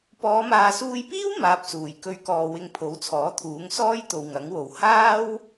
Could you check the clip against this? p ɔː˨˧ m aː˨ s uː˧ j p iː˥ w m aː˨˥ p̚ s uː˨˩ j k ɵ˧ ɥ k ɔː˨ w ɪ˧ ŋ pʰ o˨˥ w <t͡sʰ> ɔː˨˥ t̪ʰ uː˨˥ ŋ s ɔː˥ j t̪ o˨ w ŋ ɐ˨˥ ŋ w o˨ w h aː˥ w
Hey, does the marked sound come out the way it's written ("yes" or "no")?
yes